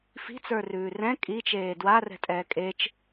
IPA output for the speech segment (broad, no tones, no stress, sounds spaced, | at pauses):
f i̤ t͡s ə˞ r ʉː r ɛ̃ kʼ i t͡ʃ eː d w a r ɛ̤ tʼ ɛː kʼ e t͡ʃ